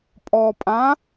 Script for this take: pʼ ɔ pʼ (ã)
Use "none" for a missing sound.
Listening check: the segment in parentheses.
ã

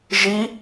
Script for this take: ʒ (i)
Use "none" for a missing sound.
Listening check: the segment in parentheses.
i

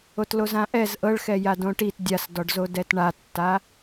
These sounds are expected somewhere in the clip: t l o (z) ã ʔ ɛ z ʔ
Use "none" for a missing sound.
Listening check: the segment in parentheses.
z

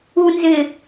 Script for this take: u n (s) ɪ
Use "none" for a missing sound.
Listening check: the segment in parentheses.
z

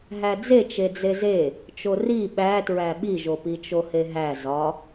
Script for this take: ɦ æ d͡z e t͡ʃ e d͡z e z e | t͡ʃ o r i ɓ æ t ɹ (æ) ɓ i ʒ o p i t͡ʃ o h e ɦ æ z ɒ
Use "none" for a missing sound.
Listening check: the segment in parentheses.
æ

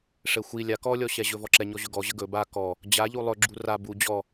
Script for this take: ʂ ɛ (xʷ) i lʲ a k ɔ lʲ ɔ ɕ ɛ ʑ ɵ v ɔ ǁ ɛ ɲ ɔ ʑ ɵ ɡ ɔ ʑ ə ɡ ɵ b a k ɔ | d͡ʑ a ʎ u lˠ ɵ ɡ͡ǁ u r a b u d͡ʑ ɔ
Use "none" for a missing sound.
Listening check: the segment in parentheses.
xʷ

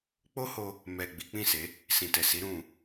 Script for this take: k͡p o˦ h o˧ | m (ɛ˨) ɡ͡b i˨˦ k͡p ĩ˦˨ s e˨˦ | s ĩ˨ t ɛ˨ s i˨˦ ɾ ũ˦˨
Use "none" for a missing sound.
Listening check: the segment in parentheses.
ɛ˨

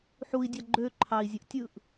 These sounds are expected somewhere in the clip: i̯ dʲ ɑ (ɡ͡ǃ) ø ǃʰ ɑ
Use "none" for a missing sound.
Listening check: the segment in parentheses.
ɡ͡ǃ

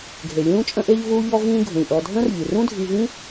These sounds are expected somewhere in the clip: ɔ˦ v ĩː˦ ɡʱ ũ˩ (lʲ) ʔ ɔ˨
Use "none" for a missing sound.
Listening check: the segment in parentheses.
lʲ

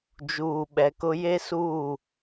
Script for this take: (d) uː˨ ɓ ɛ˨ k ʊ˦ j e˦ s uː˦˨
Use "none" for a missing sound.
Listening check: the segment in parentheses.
d͡ʒ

